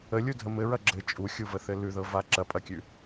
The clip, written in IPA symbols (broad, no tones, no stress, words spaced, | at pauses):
əlʲudʱə mɘɹɐ ɡ͡ǁɘ t͡ʃʼuxʲuvəθɘ lʉðɤva ǁɐpʼɐkʲʉ